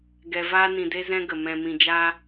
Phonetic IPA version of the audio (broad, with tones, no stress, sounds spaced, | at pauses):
ɡ ɛ˧ v aː˦ n ĩ˧ d e˦ z ɛ̃˦ ɡ ə˨ m ɛ̃˨ m ĩ˨ d͡ʒ aː˧